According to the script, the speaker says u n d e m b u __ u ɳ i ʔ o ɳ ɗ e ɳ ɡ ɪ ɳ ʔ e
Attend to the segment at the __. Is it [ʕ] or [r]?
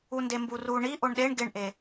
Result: r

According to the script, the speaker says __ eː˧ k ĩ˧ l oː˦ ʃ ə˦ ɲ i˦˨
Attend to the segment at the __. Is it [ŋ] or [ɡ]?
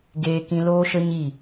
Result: ɡ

